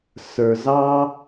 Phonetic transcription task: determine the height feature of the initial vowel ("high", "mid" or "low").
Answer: mid